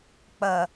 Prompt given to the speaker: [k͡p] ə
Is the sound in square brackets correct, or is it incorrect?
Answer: correct